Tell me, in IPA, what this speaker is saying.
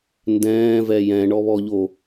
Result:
n d ɛ̃ː v ɛ j ɛ̃ ɳ ɔ β ɔ ʎ o

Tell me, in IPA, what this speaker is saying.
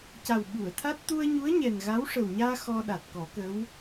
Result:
c a˨˩ w ɓ u˨˩˨ ə̯ t̪ʰ a˦˥ t̚ t̪ u˧ ə̯ ɲ u˧˥ ə̯ ɲ ɛ˨˩ n ɣ a˧˥ w ʂ ə˨˩ w ɲ aː˧ x ɔ˧ ɗ a˨˩ t̚ k ɔ˨˩˦ k ə˧˥ w

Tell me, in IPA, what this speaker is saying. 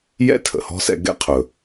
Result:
j ɛ̰˥ tʰ ə̰˩ h ɔ̤˥ s ɛ̰˧ ɡ ɛ̰˥ qʰ ɵ˩

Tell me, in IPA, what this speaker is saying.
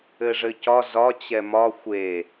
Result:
ɘ ʐ ɘ c ɒ z ɒ t͡ɕ ɛ m ɒ xʷ e

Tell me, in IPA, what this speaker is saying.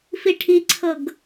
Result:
f i ʈʰ i ǀʰ ɤ ɡ

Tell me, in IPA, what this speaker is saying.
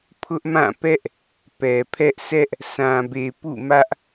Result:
pʰ ʊ˦ ʔ m ã˦˨ p ɛ˦ ʔ | p ɛ˨ pʰ ɛ˦ ʔ sʰ ɛ˦ ʔ | s ã˨ b e˨ p ṵ˦˨ m ä˦ ʔ

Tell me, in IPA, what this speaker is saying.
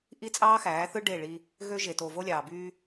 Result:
ʔ i˦ t͡sʼ ɑː˦ x æː˨˦ θ ɯ˦ ɖ e˦˨ ɭ i˧ | ɣ ø˧ ʒ e˨ t o˨ v o˧ lʲ ɑː˨ b yː˧

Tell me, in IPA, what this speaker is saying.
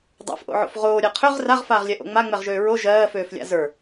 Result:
dˤ a̰ f ʔ o̰ ʕ o̰ f ʁ oː ɾʲ ɛ qʰ ø ʁ r a ʁ f aː ʁ lʲ ɛ ʔ o̰ ŋ͡m a ŋ͡m ɛ ʁ ʒ øː ɹ o ʒ ɜː f øː f lʲ a̰ z ə˞

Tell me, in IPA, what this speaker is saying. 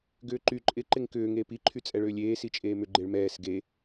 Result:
ɡ ʏː ǃ y ǃʼ ɪ ǃ ɪ ŋ k ʏː ŋ eː p i ǃʰ y t͡sʼ ɛ ɭ ʏː lʲ eː s i t͡ʃʼ eː m ʏ ɡ͡ǃ e ɭ m ɛː s ɡ e

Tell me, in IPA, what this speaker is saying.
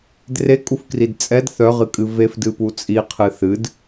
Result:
d r e kʼ u f k r i d t͡sʼ ɛ d θ œ ʁ ɨ kʼ ɨ v e f d ɨ p u t͡sʼ i qʰ ɨ θ ɨ d

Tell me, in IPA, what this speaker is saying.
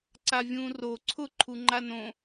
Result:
ǀ a vʲ ũː r o ǀʰ ʊ ǃʰ u ŋ͡ǃ a n õ

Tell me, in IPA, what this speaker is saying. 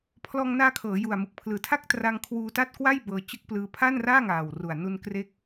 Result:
pʰ l ɔː˧ ŋ n aː˧ kʰ ɤː˩˦ j u˨˩ a̯ m ɯ˨˩ k̚ pʰ l ɯː˨˩ tʰ a˥˩ k̚ t r a˧ ŋ kʰ w uː˦˥ t a˥˩ t̚ k w a˥˩ j b ɤː˧ t͡ɕ ɯ˦˥ k̚ p l ɯː˧ pʰ a˥˩ n r aː˥˩ ŋ aː˨˩ w r u˨˩ a̯ n u˧ n k r e˦˥ k̚

